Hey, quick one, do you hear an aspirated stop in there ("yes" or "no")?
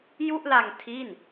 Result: yes